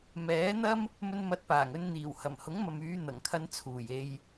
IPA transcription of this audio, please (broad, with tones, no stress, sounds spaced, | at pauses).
m ɛː˨˥ n̪ ɐ˥ m | m ɵ˧ n m ɐ˨˥ t̚ p aː˨˩ ŋ ɵ˧ n n̪ iː˨˩ w h ɐ˨˩ m h ʊ˨˥ ŋ m ɐ˨ m yː˨˧ n̪ ɐ˨˩ ŋ kʰ ɐ˧ n t͡sʰ uː˨˩ j e˧ j